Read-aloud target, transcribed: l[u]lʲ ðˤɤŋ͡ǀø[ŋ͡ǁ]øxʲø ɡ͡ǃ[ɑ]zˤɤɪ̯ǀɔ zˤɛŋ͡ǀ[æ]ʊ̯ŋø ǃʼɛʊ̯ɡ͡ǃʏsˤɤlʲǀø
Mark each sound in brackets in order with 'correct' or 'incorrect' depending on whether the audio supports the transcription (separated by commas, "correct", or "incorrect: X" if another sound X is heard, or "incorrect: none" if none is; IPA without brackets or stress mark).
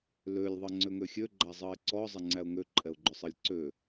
incorrect: ø, incorrect: ŋ, incorrect: a, correct